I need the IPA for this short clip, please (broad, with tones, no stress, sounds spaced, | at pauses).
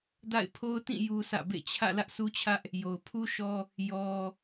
d a̰˦˨ ɪ̯ pʰ o˦ ʊ̯ t ĩ˦˨ j u˦ s ä̰˦˨ b ḛ˦˨ t͡ɕʰ ä̰˦˨ l ä˦ ʔ sʰ u˦ t͡ɕʰ ä˦ ʔ | j o˨ ʊ̯ pʰ u˦ ʃ ɔ˦ | j ɔ˦